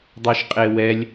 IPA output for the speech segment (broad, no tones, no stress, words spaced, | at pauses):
dˤoʃqʼewɛlʲ